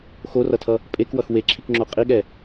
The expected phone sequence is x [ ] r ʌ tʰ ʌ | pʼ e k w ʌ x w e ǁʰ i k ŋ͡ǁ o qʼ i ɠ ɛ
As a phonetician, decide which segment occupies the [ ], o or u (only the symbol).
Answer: o